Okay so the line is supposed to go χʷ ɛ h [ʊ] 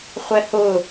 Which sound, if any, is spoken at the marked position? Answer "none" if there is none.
ʊ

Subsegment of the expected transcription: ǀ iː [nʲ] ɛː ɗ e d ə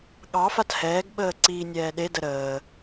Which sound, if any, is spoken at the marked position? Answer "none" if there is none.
nʲ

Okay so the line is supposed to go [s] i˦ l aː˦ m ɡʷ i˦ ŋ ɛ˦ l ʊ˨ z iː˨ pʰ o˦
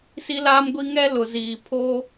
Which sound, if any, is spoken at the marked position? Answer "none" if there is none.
s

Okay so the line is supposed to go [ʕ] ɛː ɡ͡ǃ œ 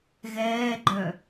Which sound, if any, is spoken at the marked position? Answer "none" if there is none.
ɣ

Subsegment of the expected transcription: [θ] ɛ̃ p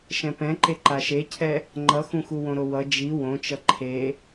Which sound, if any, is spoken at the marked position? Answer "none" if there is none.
ʃ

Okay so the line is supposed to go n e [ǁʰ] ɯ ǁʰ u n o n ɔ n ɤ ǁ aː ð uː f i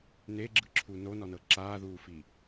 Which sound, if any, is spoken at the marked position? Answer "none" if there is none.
ɡ͡ǁ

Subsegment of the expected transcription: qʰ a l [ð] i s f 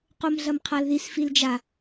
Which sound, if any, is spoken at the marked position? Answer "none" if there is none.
ð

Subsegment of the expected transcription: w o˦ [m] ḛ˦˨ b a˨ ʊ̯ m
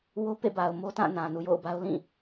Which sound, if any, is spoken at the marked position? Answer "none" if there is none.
p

